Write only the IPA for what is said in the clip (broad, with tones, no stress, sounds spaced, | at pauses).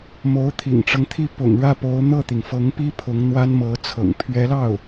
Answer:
m o˧˥ ʊ̯ t̪ʰ ḭ˨˩ ŋ ʈ͡ʂ ɤ˦ ŋ t̪ʰ i˥˩ p ʊ̰˨˩ ŋ ɻ ä˥˩ p o˧˥ ʊ̯ n̪ ɤ˥˩ t̪ i˩ ŋ f ɤ˧˥ ŋ p i˥ pʰ ʊ˧˥ ŋ n̪ w a˥ n m ɤ˧˥ t͡sʰ ɤ̰˨˩ ŋ pʰ ɥ ɛ˧˥ l ɑ˥˩ ʊ̯